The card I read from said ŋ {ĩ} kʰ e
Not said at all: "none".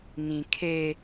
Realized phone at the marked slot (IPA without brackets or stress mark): ĩ